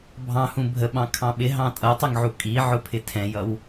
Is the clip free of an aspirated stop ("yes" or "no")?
no